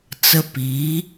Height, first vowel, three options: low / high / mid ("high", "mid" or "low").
mid